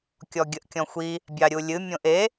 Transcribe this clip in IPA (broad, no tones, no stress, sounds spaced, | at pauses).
kʲ ɔ ɡʲ ə ʔ kʲ ɔ̃ xʷ i | bʲ ɑ ɾʲ u lʲ ɨ mʲ õ ʔ e